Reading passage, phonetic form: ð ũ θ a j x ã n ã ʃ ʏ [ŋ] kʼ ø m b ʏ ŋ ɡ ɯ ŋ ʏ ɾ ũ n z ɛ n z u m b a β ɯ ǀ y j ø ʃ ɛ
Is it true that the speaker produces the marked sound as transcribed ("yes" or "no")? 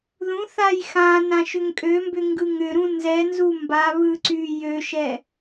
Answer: yes